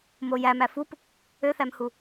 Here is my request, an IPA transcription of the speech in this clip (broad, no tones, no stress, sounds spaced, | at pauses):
m o j æ m æ f u p | ø θ æ m h u